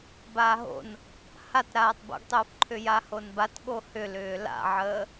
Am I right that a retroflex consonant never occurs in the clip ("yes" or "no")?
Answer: yes